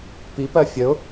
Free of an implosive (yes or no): yes